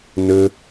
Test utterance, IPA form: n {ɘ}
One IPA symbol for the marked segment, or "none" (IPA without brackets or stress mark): ɘ